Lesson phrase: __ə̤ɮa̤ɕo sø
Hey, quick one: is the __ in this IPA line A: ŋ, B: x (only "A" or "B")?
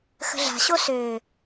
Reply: B